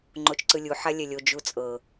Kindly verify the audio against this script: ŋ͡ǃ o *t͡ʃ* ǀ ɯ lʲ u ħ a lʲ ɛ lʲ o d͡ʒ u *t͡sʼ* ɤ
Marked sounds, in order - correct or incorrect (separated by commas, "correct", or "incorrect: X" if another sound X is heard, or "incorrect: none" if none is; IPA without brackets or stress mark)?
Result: correct, correct